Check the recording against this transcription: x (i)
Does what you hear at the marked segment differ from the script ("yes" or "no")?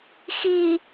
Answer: no